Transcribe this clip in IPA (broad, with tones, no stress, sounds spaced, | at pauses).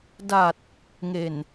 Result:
d a˨˩ t̚ | ŋ e˨˩ n